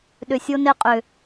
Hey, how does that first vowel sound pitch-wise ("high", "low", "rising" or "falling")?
low